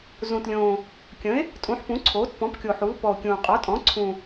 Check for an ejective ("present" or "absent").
present